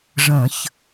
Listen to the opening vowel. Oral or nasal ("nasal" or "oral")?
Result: nasal